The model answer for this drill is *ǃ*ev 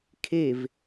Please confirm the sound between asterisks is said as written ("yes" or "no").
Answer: no